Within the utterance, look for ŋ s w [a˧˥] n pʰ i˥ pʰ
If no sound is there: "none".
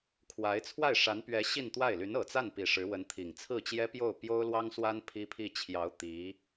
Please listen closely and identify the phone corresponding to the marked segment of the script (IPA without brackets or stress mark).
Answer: a˥